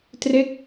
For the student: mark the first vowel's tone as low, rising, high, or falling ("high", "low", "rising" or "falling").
falling